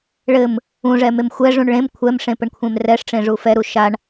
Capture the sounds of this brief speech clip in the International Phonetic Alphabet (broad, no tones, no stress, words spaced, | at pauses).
ɭɘm | ũʐɛmem xʷɛʐũɳ ɭẽm kʷʰɛmʂẽpɘɳkʷʰẽm rɛʂʈ͡ʂẽʐu fɛɾu ʃaɳ